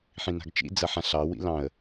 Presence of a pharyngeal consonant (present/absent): present